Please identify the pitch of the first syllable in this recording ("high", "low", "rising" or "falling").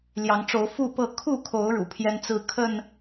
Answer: rising